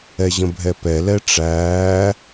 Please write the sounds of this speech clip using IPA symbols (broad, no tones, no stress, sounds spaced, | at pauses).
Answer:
ɛ ʑ ə̃ bʱ ɛ p ɛ l ɛ ʈ͡ʂ æː